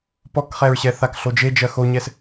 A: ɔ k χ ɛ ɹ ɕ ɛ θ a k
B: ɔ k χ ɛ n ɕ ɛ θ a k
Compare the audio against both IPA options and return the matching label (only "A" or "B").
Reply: A